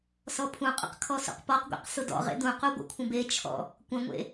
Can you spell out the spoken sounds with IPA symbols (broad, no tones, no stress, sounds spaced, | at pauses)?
s ɔ pʰ ũ qʼ ə̰ q kʰ ɔ s ṵ q p ɔ q ɡʷ ḛ q s ʊ d ɔ̰ ʁ ḛ d ũ q u ɡʷ ə̰ kʷʰ ə̃ b e t͡ʃʰ ɔ̰ | kʷ ə̃ ŋʷ ḛ